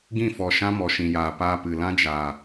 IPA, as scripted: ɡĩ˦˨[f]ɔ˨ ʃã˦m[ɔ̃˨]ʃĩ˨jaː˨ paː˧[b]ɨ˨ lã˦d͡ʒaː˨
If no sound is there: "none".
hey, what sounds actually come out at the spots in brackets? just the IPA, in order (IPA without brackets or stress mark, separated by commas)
f, ɔ˨, p